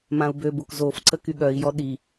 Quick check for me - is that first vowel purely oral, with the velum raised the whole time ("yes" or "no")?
no